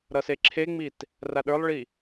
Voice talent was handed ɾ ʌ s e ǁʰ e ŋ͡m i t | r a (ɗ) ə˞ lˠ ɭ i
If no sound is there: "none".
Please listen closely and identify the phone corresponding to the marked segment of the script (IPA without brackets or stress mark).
ɗ